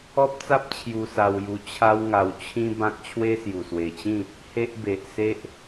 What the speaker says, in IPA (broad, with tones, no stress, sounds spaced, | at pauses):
ɔ˦ p̚ t͡s a˦ p̚ t͡ɕʰ j u˧ s a˧ w j u˧ t͡ɕʰ a˦ w ŋ a˧ w t͡ɕʰ ĩ˦ b ã˦ k̚ t͡ɕʰ w e˦ s j u˨˩ s w e˨˩ t͡ɕ ĩ˥˧ | h e˦ ʔ b e˨ ʔ s e˦ ʔ